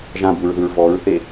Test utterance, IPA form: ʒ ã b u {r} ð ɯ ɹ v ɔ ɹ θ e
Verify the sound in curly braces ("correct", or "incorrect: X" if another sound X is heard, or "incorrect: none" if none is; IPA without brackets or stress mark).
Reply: incorrect: ɹ